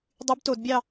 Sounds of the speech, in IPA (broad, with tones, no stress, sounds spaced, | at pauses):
dˤ y˧˥ b t o˧˩˧ d bʲ ɑ˥˨